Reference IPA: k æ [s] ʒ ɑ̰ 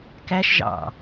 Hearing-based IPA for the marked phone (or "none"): ʃ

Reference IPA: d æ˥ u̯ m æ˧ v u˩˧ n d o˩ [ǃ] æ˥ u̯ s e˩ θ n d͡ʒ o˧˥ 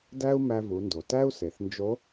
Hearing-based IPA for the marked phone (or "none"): t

